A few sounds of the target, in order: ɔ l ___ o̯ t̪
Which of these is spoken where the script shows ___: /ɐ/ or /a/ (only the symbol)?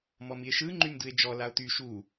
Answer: a